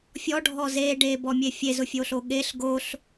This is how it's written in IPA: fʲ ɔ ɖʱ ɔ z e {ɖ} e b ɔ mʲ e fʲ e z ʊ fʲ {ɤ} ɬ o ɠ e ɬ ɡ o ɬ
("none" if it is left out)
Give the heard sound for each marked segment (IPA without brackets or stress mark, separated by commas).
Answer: ɖ, o